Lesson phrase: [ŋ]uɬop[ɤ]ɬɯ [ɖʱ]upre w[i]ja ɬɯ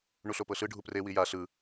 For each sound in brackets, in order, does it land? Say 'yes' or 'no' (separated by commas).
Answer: no, yes, yes, yes